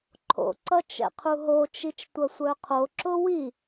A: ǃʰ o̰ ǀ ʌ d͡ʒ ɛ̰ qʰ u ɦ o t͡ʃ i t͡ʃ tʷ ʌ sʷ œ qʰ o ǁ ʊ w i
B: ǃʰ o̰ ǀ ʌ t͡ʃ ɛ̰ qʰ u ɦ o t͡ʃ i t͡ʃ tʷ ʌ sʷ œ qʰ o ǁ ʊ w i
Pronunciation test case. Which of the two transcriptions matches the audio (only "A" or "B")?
B